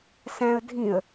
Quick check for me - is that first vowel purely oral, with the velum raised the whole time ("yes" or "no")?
no